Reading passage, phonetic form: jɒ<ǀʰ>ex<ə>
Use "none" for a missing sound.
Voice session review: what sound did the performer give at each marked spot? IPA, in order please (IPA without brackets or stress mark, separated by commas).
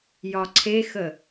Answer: ǀʰ, ə